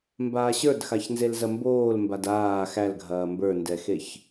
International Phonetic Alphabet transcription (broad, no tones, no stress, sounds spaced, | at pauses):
m b aː ɕ ə˞ d x a ç n z e l z ɐ m b oː l m b a d aː x æ l ɡʱ ɐː m b ə˞ n d ɛ x e ç